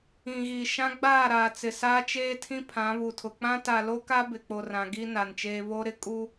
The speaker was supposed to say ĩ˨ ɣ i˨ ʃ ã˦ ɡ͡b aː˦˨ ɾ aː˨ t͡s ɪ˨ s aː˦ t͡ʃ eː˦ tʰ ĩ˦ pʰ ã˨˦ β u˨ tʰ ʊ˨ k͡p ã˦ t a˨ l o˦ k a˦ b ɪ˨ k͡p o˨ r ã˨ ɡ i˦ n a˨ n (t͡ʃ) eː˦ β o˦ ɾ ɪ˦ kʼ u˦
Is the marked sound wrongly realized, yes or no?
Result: no